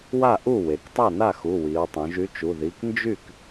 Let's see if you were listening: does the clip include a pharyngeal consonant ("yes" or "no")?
no